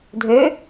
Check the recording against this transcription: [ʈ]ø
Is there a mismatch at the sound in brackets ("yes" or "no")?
yes